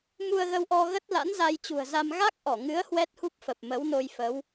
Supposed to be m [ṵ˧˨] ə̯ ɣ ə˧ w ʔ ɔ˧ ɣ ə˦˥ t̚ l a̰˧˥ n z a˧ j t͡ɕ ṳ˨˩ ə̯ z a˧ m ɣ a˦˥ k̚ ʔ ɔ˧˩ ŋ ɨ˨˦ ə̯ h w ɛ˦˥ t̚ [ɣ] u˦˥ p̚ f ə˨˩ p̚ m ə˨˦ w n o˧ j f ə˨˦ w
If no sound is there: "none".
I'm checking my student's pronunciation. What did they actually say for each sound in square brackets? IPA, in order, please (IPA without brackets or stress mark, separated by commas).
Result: u˧, h